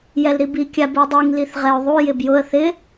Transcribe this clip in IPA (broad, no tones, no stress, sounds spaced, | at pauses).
j ɛ l ɾ i b i kʲ a b u dˤ i ŋ l i θ ʁ ɛ ʊ̯ ðˤ u j ɪ b j ʊ ə̯ θ ɪ